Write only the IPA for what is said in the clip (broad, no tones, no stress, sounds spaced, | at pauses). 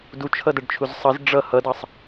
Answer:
d u t͡ʃʰ ʌ d æ ɖ t͡ʃʰ u z sˤ ʌ z ɖ͡ʐ ʌ h ʌ d ɑ sˤ